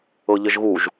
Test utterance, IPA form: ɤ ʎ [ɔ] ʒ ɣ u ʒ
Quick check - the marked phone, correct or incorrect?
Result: incorrect